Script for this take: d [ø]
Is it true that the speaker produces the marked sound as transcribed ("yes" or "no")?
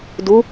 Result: no